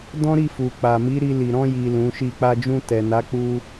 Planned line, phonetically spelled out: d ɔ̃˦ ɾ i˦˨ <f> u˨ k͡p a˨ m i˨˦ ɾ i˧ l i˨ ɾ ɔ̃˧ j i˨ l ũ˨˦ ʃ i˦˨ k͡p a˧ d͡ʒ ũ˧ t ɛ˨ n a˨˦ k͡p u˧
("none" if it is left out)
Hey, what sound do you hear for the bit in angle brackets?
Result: f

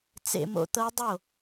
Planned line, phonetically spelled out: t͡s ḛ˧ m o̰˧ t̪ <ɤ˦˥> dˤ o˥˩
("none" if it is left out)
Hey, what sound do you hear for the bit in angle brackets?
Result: ɤ˦˥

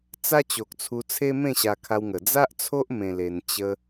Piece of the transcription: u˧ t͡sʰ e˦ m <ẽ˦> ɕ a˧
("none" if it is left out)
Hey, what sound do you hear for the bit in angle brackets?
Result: ẽ˥˧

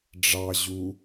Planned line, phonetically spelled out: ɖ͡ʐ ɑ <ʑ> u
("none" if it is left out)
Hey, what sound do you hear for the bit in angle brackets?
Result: ʑ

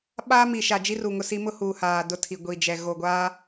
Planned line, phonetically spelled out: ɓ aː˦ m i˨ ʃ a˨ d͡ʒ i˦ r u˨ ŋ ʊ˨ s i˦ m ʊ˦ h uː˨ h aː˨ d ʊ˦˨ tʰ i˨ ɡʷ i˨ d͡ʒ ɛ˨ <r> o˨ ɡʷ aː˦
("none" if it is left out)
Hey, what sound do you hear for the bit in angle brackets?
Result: ɣ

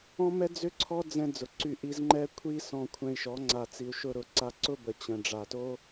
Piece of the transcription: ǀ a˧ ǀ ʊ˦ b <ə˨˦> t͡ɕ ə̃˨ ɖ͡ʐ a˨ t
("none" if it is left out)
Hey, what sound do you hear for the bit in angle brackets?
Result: ə˨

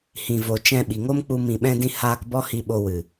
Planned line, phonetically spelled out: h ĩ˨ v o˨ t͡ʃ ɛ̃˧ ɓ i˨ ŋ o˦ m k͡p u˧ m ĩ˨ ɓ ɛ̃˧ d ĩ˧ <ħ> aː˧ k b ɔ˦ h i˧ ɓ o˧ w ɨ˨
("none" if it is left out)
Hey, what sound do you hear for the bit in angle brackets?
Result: h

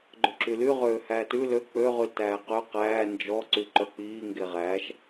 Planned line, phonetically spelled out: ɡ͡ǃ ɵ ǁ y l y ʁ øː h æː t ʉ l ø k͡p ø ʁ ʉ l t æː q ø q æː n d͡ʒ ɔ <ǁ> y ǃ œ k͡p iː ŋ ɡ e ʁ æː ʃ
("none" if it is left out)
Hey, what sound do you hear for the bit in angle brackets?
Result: ǀ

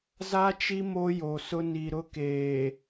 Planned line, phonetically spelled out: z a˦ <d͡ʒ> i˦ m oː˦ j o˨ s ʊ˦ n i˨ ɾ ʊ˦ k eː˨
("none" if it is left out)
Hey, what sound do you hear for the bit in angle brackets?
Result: t͡ʃ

